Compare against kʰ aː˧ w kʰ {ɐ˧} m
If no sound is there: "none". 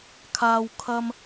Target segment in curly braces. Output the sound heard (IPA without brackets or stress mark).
ɐ˧